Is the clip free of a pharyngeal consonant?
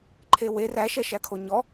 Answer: yes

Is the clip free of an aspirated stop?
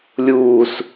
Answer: yes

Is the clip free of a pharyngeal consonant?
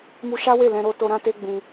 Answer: yes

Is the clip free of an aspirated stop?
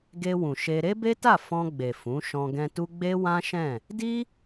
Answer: yes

